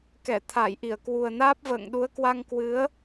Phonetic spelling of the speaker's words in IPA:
k ɛ˧˩ t̪ʰ a˧˩ j ʔ i˧˩ ə̯ k w u˨˩ ə̯ n aː˦˥ p̚ v ə̰ː˧˨ ŋ ɗ u˨˦ ə̯ k w a˧ ŋ k w ɨ˨˦ ə̯

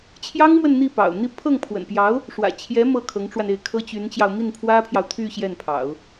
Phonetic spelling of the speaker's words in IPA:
t͡ɕʰ j ɑ˥ ŋ m w ə˥˧ n n̪ i˥˩ p ɑ̰˨˩ ʊ̯ n̪ i˥˧ pʰ ɤ˥˩ ŋ pʰ w ə̰˨˩ n p j ɑ˧˥ ʊ̯ | ʂ w ä̰˨˩ t͡ɕʰ j ɛ˧˥ m ɤ˥˩ kʰ ɤ˧˥ ŋ ʈ͡ʂ w a˧ n e˥˩ ɪ̯ kʰ ɤ˥ t͡ɕ y˧˥ n t͡ɕ j ɑ˧ ʊ̯ m i˥˩ n pʰ w ä˥ pʰ j ɑ˨ ʊ̯ t̪ʰ y˥˧ ɕ j ɛ˥˩ n pʰ ɑ̰˨˩˦ ʊ̯

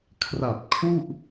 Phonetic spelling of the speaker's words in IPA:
kʰ r a˨˩ p̚ kʰ u˥˩ ʔ

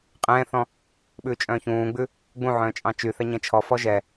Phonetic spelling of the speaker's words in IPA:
qʼ ɛ̃ː θ ɔ̃ | ɓ ʉː t͡ʃʼ œ̃ː ç ũː ɡ͡b ʉ | ɡ͡b ũ ʕ œ̃ː t͡ʃʼ ɑ̃ t͡ʃ y θ ɛ ɲ ɛ̃ t͡ʃʰ ɔ f ɔ ʒ ɛ

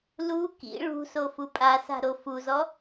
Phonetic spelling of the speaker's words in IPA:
l u k ḭ ɭ ṳ s o f u pʼ a s a̤ ɾ o f u z ɔ

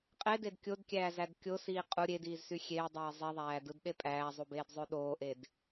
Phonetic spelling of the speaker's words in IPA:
qʼ e d e d kʲ o d kʲ æː z æ d kʲ o s iː qʼ u ɾʲ e d iː z s y xʲ eː dˤ eː zˤ i ðˤ æː d ɯ d ɗ e pʼ æː zˤ u b eː d zˤ ø ɗ oː ʔ e d

